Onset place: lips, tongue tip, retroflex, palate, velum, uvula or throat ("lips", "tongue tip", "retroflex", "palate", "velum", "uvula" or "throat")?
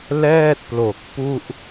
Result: tongue tip